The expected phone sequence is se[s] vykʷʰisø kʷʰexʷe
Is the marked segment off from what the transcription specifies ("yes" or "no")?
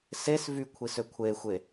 no